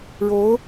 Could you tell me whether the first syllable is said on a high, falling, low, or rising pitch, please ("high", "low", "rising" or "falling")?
rising